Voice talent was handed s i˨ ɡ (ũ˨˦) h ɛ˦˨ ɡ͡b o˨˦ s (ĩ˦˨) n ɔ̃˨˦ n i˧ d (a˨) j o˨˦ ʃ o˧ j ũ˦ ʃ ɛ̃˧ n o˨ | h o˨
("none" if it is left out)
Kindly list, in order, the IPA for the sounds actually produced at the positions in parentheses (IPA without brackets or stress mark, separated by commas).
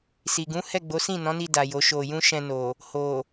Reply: ũ˨˦, ĩ˦˨, a˨